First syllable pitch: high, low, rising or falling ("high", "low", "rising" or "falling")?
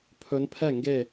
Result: rising